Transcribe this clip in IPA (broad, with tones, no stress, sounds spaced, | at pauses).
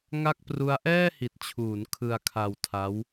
ŋ a˥˩ k̚ p r u˦˥ a̯ ʔ ɛː˥˩ h i˨˩ t̚ t͡ɕʰ uː˩˦ n kʰ ɯ˧ a̯ kʰ a˧ w tʰ a˦˥ w